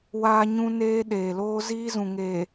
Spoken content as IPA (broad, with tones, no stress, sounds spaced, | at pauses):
w aː˦ ɲ ũ˦ n eː˦ ɗ eː˨ l oː˦ z iː˦ z ũ˨ ŋ eː˨